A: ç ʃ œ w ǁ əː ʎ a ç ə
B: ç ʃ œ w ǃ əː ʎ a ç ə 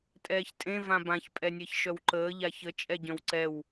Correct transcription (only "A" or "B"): B